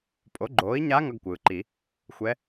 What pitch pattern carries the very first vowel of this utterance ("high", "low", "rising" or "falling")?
rising